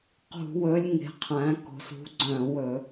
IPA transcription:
q ṳ˧˩˧ w ɵ˨˦ lʲ ŋ e̤˨˦ qʰ æ̃˨˦ k o̤˨˦ s ṳ˨˦ ɡ͡ǀ œ̃˧˩˧ w ɵ˧˩˧

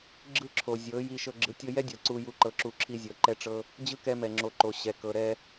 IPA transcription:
ɡ͡ǁ ɯ˦ ǁʰ o˨ zʲ ɤ˨˦ j i˧ ʃ ɤ˧ ɡ͡ǁ ɯ˨ tʲ ɤ˧ j ɛ˦ dʲ ɤ˨ ǀ u˧ j u˧ ǃ ɤ˧ ǁ u˧ ǁʰ i˧ zʲ ɤ˨ ǃ ɛ˧ ʈ͡ʂ ɤ˧ | d͡ʑ ɯ˦ k ɛ˧ m ɛ˨ ŋ͡ǁ o˨ ǃ o˨ ɕ ɛ˨ k ɤ˨ ɾ ɛ˧

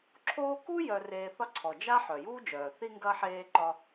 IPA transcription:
ǁʰ oː˦ k u˥ j œ˨ r eː˨ θ ɒ˦ ǀʰ ɔ˩ d͡ʒ a˥ ħ œ˩ j uː˥ d͡ʒ œː˩ θ i˦ ŋ ɡ ɐ˦ ħ eː˦ ǃ ɒ˦

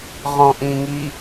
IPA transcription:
ʁ ɔ̃ ʔ ĩː ŋ i

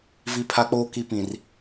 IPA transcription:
v i˨ pʰ a˨ k͡p oː˨ k i˨ p ĩ˨ r

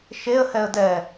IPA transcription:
ʃ e ə̯ h ɛ ə̯ d ɛ

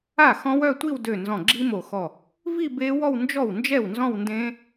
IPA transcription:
a˥˩ x ɔ̃˦˥ w œ˥˧ tʷ i˥˧ w d ø˧˩ n z ɔ̃˧˩ ɡ͡ǁ i˦˥ m o˧˩ x ɔ˧˩ | v i˥˧ b e˦˥ w ɔ˥˧ w n d͡ʒ ɔ˥˩ w n d͡ʒ ɛ˥˩ w n z ɔ̃˥˧ w n d ẽ˦˥

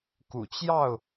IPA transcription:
k ṵ˨˩ t͡ɕ j ɑ˥˨ ʊ̯

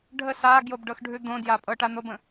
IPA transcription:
ɖʱ ə s a ɡ j o b ɖ ɤ x ɖʱ ʉ d̪ õ d j a pʼ ɤ ʈ a n̪ o b ə̃

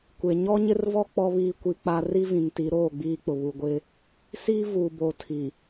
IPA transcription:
kʷ e˨ ɲ ɔ˦ ɲ ɪ˦ r v ɔ˦ k͡p ɔ˦ β iː˦˨ kʷ i˦ k͡p a˦ r i˦ v ĩ˨ ŋ t i˨˦ ɾ oː˦˨ ɡ͡b iː˦ k͡p ʊ˨ β u˨ ɡʷ ɪ˦ | s iː˦ v uː˨ b o˨ tʰ i˨

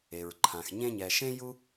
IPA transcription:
e˩ ɹ ǃʰ ã˩ x ɲ ẽ˧ ɲ ɛ˩ ʃ ẽ˥ j u˥

